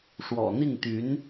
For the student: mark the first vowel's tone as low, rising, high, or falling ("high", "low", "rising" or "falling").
low